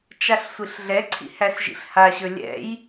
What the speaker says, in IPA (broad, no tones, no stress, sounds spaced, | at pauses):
t͡ʃ a ɬ sʷ i ɬ ɮ ɛ ǀʰ ḭ h æ s ʒ ḭ ɬ h a ɕ ɵ lʲ ɛ̰ j